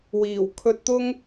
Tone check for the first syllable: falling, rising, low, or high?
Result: low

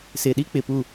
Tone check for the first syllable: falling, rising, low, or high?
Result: low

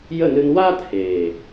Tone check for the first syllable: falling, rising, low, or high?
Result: falling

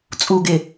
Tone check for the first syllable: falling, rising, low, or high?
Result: low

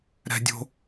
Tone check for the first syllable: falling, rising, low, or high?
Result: low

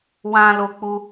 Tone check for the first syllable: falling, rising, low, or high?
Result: high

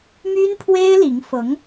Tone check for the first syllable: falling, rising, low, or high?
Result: high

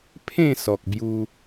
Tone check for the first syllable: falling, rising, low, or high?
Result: falling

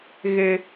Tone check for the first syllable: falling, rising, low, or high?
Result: low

